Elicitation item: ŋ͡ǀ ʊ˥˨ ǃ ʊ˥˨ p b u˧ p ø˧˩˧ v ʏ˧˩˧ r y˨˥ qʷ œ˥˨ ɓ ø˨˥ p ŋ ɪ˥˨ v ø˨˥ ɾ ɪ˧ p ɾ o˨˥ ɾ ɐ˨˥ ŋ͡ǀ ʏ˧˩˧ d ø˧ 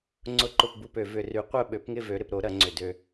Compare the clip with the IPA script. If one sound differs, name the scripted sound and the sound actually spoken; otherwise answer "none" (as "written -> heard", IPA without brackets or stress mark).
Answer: none